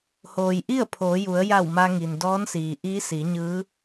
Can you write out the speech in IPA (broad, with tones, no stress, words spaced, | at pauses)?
hoː˩jʔi˥˨ə̯ pʰoː˩˧ju˩˧ə̯ ja˧˩w ma˧ŋi˩ndɔː˧˥nsiː˩ ʔiː˧˥si˩˧ɲɯː˧˥